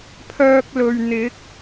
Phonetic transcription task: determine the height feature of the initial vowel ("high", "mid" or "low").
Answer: mid